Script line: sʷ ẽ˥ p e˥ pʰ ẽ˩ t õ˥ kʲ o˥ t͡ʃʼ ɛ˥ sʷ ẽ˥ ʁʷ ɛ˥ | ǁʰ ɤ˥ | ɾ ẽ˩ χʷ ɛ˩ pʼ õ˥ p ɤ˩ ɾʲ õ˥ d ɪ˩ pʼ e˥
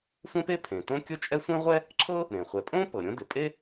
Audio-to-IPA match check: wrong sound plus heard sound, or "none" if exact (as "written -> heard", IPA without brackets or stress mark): none